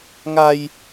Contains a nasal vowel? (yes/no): no